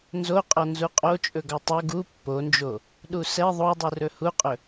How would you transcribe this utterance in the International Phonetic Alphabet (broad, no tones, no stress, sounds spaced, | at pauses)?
n z o qʼ ɔ n z u qʼ o t͡ʃʼ ɵ ɡ ɔ tˤ o ɡ u pː o n d͡ʒ o | ɗ u s ɛ ðˤ o dˤ u r ɵ h u qʼ ɵ